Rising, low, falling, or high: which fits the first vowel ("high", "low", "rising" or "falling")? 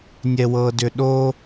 high